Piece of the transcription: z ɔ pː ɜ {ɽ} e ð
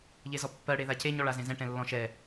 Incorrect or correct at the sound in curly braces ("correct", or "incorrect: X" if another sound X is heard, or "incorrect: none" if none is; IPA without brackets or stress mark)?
correct